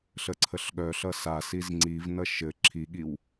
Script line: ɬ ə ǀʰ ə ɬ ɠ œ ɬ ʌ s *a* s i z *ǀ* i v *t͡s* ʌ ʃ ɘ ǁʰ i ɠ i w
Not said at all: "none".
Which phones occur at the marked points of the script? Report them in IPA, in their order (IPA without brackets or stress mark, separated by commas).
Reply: a, ŋ͡ǀ, n